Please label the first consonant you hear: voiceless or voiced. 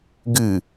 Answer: voiced